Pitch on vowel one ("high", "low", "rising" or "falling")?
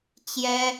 high